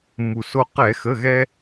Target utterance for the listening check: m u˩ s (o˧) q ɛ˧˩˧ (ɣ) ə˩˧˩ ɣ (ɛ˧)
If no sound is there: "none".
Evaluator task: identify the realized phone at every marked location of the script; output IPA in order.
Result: o˧, x, ɛ˧

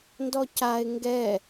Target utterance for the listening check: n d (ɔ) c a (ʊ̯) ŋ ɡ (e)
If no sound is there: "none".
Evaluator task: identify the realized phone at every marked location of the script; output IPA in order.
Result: ɔ, ɪ̯, ɛ

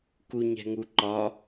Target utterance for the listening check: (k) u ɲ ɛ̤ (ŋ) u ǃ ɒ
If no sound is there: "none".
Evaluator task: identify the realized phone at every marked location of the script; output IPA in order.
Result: k, ŋ

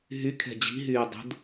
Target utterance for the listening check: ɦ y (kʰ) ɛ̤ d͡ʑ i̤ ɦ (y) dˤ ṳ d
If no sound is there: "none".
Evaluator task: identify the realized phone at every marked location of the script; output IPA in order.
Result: kʰ, yː

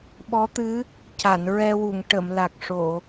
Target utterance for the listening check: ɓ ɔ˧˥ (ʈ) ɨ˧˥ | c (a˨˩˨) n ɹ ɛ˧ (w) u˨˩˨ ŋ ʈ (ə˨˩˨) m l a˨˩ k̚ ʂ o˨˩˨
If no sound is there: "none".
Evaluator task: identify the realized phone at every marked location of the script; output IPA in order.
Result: t̪, a˨˩˨, w, ə˨˩˨

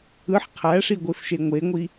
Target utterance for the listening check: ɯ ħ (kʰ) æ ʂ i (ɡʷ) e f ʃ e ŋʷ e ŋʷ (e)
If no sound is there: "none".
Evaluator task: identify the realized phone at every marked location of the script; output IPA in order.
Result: qʰ, ɡʷ, i

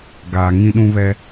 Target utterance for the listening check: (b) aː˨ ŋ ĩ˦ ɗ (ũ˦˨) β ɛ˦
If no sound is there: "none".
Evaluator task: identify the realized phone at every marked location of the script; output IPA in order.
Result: ɡ, ũ˦

